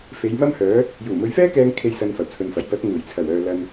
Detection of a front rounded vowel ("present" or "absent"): present